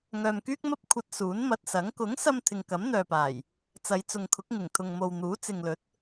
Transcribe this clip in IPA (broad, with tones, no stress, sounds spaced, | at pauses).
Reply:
ŋ œː˨ m k yː˥ k̚ m ɐ˥ p̚ kʷʰ ɐ˧ t̚ s uː˨˥ n m ɐ˧ t̚ s ɐ˨˥ ŋ k ʊ˨˥ ŋ s ɐ˧ m t̪ʰ ɪ˨ ŋ k ɐ˨˥ m n̪ œː˨ p aː˨˩ j | t͡s ɐ˨˧ j t͡s ʊ˨ ŋ kʰ ʊ˨˥ k̚ ŋ ɪ˨˩ ŋ t̪ʰ ʊ˨ ŋ m o˨ w n̪ uː˨˥ t͡s ɪ˨ ŋ l ɵ˨˥ t̚